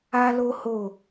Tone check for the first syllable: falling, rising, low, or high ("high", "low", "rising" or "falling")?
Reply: high